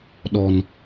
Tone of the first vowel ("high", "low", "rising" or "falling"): low